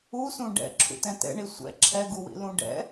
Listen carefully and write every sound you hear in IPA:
u s ũ ɖ ɛ̰ ǁʰ ṵ t ɛ̃ t ɛ̰ ɳ i sʷ ɛ̰ ǁʰ ɛ ɡ u w ḭ l ũ ɖ ɛ̰

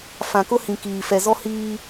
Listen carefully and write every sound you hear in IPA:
f ã˨ k ʊ˦ h ĩ˨ k iː˨ f ɛ˨ z ɔ˦ h iː˦

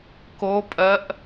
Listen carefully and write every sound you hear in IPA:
k o pʼ ɜ ʔ

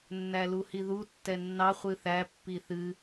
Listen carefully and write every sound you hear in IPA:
nː æ l u h i ð u tː ɛ nː ɑ χʷ ɨ θ æ pː i θ ɨ

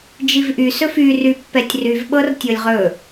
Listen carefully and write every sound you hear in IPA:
d͡ʒ i v ʔ y s ɵ f y r y pː ɛ tʲ r y v ɓ ɤ r tʲ ɤ lʲ ʁ ɵ

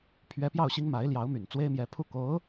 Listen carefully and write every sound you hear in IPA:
pʰ ɥ ɛ˧˥ p j ɑ˥˩ ʊ̯ ɕ i˥ ŋ m a˧˥ ɪ̯ l j ɑ˧˥ ʊ̯ m y˨˩ n t͡s w e˥ ɪ̯ m j ɛ˧˥ pʰ u˥˩ k o˧˥ ʊ̯

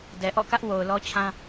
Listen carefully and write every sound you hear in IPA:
d ɛ˨ ʔ ɔ̰˦˨ k ä˦ ʔ w o˨ ʊ̯ l ɔ˦ t͡ɕʰ ã˦

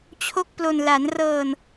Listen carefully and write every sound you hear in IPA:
t͡ɕʰ o˥˩ k̚ p l o˧ n l a˩˦ n r ɤː˧ n

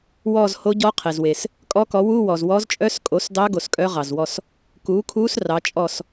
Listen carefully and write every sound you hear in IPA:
w ɔː˦˨ z h o˧˥ ɟ ɔ˧˥ qʰ e˩ z w e˩ s | kʼ ɔ˧˥ k ɔ˩˥ w u˧˥˧ w ɔ˩ z w ɔ˧˥ z t͡ʃʼ œ˧˥˧ s kʼ o˩˥ s d ɑ˧˥ ɡ o˩ s kʼ œ˧˥ ʁ ɑ˩ z w ɔ˦˨ s | k uː˩˥ kʰ uː˧˥ s r ɑ˩˥ t͡ʃʼ ɔ˦˨ s

